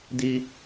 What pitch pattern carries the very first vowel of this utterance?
high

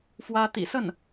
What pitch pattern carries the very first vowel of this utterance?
high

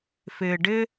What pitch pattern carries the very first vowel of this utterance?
low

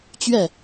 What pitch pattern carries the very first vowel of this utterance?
falling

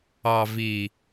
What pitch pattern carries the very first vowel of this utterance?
low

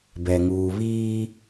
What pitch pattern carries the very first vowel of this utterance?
low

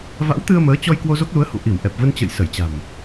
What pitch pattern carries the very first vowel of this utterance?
rising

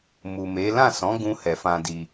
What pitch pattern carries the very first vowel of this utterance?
low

